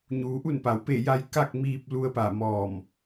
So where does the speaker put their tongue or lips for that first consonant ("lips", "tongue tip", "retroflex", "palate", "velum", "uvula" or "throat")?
palate